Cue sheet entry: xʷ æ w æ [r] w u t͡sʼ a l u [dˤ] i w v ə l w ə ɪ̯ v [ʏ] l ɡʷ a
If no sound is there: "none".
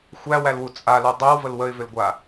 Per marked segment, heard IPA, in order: l, dˤ, ʏ

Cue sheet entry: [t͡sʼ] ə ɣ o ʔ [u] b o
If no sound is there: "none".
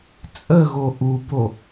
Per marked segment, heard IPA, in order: t͡sʼ, u

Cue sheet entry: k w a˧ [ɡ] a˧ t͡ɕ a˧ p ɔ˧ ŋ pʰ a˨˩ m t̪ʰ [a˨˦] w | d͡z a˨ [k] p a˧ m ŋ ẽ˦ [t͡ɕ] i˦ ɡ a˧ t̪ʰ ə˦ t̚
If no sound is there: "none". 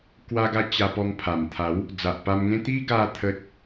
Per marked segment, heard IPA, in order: ɡ, a˨˦, ʔ, t̪

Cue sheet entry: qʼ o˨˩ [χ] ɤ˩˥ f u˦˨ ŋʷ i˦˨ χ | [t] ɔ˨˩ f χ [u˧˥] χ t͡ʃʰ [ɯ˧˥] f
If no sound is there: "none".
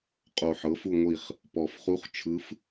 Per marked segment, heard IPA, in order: ħ, p, u˧˥, ɯ˧˥

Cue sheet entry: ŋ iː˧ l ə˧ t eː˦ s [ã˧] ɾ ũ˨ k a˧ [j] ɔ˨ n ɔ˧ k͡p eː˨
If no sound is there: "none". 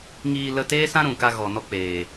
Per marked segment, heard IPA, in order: ã˦, ɣ

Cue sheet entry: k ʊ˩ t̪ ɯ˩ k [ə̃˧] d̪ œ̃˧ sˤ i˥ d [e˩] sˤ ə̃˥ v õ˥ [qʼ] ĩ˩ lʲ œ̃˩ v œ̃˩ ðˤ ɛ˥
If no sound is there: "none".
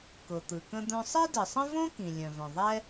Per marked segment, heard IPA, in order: ə̃˧, ɨ˩, k

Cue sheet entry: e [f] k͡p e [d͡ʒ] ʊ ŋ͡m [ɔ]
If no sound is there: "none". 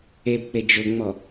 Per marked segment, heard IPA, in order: b, d͡ʒ, ɔ

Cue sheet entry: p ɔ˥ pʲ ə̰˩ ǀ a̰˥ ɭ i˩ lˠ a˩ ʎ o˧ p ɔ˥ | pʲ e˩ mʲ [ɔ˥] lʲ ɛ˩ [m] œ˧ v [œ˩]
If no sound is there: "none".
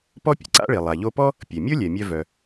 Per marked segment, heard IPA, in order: o˥, mʲ, œ˩

